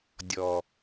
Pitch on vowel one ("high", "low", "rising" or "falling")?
low